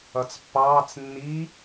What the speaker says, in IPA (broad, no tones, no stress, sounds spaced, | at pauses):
ʌ t͡s pː ɑː t͡s nː i